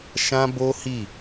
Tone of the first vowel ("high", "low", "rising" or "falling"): high